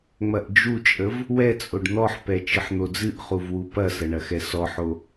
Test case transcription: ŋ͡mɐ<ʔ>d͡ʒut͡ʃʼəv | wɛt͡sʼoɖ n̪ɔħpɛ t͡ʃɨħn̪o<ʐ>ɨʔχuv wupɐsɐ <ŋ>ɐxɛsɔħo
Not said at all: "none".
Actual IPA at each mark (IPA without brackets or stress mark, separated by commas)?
ʔ, d͡z, ɳ